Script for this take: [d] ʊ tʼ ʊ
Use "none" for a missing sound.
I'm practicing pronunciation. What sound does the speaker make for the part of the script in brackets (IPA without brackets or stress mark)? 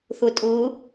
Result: θ